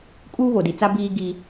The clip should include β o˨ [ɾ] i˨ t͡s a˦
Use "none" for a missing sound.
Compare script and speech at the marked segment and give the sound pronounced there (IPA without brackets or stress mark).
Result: d